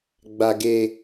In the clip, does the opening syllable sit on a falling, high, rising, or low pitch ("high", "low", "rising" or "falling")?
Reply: low